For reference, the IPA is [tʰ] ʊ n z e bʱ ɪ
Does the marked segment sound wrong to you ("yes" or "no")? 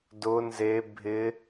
yes